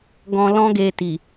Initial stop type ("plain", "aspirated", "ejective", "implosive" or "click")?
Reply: plain